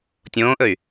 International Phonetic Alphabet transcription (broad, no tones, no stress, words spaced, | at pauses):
tʲõːʔɵy̯